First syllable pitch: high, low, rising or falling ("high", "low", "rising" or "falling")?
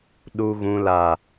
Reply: low